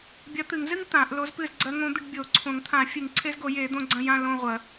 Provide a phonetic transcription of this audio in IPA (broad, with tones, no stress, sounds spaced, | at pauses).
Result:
bʲ ɐ˧˥ t̪ ɨ˨˩˦ ŋ z ɨ˥ ŋ t̪ ã˨˩˦ ʔ l o˧˥ z p ɨ˦˨ z ɡ͡ǀ ɐ˧˥ ŋ õ˧˥ d̪ ɨ˦˨ ɖ bʲ o˨˩˦ ǀʰ õ˨˩˦ ŋ t̪ʰ ã˨˩˦ fʲ ɨ˨˩˦ ŋ ǀʰ e˧˥ z ɡ o˨˩˦ j e˨˩˦ d̪ õ˦˨ ɡ͡ǀ ɐ̃˦˨ j ã˦˨ l õ˦˨ ʁʷ ɐ˨˩˦